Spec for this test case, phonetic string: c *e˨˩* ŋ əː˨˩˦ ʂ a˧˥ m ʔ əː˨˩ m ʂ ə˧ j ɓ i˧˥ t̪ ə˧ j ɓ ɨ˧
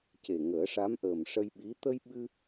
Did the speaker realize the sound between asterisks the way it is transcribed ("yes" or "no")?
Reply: yes